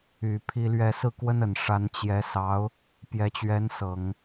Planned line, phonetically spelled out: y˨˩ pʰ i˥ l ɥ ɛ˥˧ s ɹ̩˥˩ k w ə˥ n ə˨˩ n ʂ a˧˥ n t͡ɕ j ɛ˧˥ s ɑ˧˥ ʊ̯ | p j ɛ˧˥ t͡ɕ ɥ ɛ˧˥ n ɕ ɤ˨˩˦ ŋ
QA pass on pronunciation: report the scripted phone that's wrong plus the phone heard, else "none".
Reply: ɕ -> s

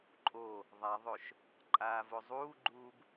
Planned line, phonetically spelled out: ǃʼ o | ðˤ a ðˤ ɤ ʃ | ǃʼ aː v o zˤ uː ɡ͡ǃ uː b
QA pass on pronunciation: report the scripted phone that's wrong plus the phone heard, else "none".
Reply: ɤ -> o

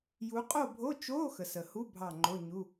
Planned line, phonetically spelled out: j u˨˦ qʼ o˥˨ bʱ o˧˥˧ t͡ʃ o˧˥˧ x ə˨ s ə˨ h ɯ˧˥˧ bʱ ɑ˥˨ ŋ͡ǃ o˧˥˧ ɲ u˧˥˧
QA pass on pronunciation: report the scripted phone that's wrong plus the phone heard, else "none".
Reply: ɯ˧˥˧ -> u˧˥˧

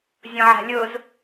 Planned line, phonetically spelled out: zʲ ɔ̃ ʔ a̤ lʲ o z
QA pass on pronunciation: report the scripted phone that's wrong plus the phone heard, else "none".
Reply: ʔ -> ʕ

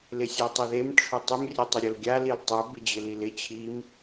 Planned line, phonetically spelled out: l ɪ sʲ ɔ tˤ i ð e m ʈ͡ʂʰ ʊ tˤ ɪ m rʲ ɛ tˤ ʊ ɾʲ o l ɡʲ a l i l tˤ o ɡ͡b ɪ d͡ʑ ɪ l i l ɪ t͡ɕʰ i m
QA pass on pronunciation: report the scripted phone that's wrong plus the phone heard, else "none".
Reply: ɡ͡b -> b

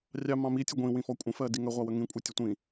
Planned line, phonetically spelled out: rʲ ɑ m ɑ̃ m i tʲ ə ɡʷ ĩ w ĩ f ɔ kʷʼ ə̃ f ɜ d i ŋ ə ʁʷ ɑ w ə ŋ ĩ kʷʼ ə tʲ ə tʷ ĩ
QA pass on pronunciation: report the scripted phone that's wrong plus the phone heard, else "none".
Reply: none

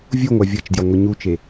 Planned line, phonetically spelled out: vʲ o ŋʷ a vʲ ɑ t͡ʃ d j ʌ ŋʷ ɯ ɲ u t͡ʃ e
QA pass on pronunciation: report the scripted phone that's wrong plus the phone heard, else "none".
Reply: ɑ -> ʌ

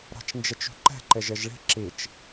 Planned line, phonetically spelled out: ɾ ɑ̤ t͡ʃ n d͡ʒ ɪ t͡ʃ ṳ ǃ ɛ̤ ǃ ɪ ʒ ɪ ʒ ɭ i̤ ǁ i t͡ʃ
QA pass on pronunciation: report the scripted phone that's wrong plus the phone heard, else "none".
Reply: none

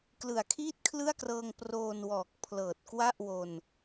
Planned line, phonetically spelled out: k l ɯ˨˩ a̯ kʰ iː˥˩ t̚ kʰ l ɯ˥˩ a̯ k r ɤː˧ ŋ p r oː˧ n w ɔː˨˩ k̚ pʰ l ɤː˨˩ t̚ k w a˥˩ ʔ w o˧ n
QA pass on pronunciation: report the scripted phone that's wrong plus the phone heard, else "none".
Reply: none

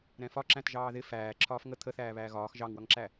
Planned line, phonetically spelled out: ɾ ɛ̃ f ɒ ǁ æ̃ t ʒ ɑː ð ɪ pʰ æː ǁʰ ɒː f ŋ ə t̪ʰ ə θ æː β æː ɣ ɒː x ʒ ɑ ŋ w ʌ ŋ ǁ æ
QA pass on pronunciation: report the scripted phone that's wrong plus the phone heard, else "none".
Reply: pʰ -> f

